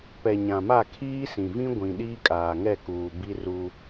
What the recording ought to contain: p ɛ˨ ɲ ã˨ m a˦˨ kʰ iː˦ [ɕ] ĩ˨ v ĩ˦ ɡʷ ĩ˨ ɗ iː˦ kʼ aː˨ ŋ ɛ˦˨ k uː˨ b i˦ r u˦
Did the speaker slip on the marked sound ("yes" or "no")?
yes